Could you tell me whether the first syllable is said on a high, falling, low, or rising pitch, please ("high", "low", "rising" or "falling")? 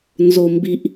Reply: low